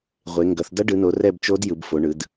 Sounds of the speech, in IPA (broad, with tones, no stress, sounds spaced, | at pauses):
ʁʷ e˩˧ ŋ ɡ ʌ˩˧ θ d ʌ˧˥ ɖ ɯ˩˧ n o˩˧ r ɛ˦˨ b t͡ʃ o˧˥ d j ɯ˩˧ b f o˩˧ ɳ ɯ˩˧ d